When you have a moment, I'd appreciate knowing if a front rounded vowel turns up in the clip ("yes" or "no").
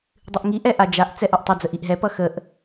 no